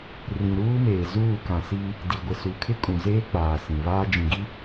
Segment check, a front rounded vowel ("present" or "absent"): absent